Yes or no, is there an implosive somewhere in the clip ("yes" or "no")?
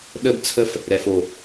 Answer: yes